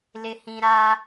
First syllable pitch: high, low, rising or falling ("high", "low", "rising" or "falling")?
low